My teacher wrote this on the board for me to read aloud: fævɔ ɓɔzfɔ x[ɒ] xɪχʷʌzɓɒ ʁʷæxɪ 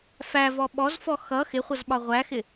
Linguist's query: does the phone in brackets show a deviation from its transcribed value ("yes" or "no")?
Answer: yes